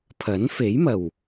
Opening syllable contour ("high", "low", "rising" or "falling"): rising